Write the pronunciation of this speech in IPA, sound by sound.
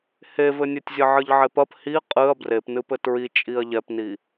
h e v ɘ nʲ e tʲ zʲ ɘ ʕ ɨ ʎ ʕ e p ɐ p h i qʼ ɨ ɐ̯ b r e p n ɨ p ɘ t ɹ i t͡ʃʼ i ɐ̯ ʎ ɛ p n i

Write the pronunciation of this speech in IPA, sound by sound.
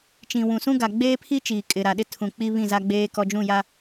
t͡ʃ ĩ˨ w ũ˨ s ũ˦ ɡ a˨ ɡ͡b eː˦ pʰ i˦ t͡ʃ iː˨ kʼ ɪ˨ ɾ a˨ ɗ ɪ˦ tʰ ũ˨ k͡p i˦ β ĩ˦˨ z a˦ ɡ͡b eː˦ k ɔ˦ d͡ʒ ũ˦˨ j a˦

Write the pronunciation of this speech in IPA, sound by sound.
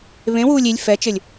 β ẽ w uː lʲ i lʲ f ɛ t͡ʃ ɘ lʲ

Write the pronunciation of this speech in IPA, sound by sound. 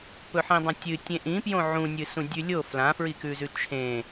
p ɵ ħ ĩ dˤ ɐ̃ tʲ ɨ tʲ ẽ ʔ ĩ p j õ ʕ ũ nʲ ɨ s ũ dʲ ʉ lʲ o f l ã f ɹ i k ʉ z ʉ t͡ʃʰ ẽ

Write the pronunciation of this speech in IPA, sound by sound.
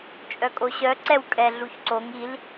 t͡ʃʼ œ kʼ o ɕ œ ǀ ɛ w kʼ ɛ ɮ u ç ǀ o ŋ i l

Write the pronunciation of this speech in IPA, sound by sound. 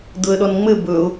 d̪ ʊ ə̯ ɗ ɔ n ŋ͡m ɘ b ɵ ʊ̯

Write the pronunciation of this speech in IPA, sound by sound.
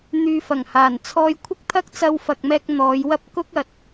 n̪ yː˧ f ɐ˨˩ ŋ h aː˨˩ n t͡sʰ ɔː˧ j kʷʰ ɪ˥ k̚ t̪ʰ ɐ˥ k̚ t͡s ɐ˧ w f ɐ˨ k̚ m ɛː˧ k̚ n̪ ɔː˨˧ j w ɐ˥ p̚ k ʊ˥ k̚ ɐ˨ t̚

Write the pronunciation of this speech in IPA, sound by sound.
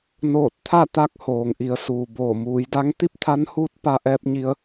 n oː˧˩ t̚ t̪ʰ a˥˨ t̪ a˧˥ k̚ h oː˩ ŋ ʔ i˩˧ ə̯ s uː˩ b oː˧˩ m uː˩˧ j d a˧˥ ŋ t̪ i˥˨ p̚ t̪ʰ a˧˥ n h uː˧˥ t̚ p a˧ ʔ ɛː˧ p̚ ɲ i˧ ə̯

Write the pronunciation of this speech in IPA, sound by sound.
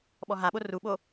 ɓ ɔ ɦ a ɓ o r u ɓ o

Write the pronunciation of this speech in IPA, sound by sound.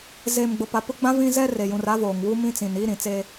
z eː˨ m ɡ͡b ʊ˨ p a˨ p ʊ˦ ɡ͡b ã˦ v ĩ˦ z ɛ˦ r e˨ j ũ˨ r a˦ v oː˨ ŋ w u˦ m ĩ˦ t͡s ĩ˨ n i˦ ɾ ĩ˨ t͡s eː˦

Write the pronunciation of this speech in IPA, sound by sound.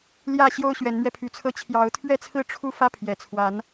l j ä˥˨ ɕ j o˦ ʊ̯ ɕ ɥ ɛ˨˦ n m ɥ ɛ˧ pʰ y˨˦ t͡sʰ ɤ˦ t͡ɕʰ j ɑ˨˦ ʊ̯ t̪ʰ ɥ ɛ˦ t͡sʰ ɹ̩˥˨ ʈ͡ʂʰ u˥˨ f ä˦ pʰ j ɛ˨˩ t͡sʰ w a˨˦ n

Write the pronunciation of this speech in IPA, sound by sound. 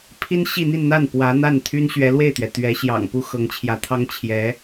pʰ i˥ n ɕ i˥˧ n̪ i˥˧ n n̪ a˥˩ n p w ä˧˥ n̪ a˥˩ n t̪ʰ y˥ n ɕ ɥ ɛ˧˥ l w e˥˩ ɪ̯ t̪ ɥ ɛ˩ t̪ ɥ ɛ˧˥ ɕ j ɑ̰˨˩ ŋ p u˥ x ɤ˧˥ ŋ t͡ɕʰ j ä˧˥ t̪ʰ ɑ˥ ŋ t͡ɕʰ j ɛ˧˥

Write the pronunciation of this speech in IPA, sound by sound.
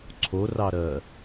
ǀʰ o r ɑ ɾ ɜ

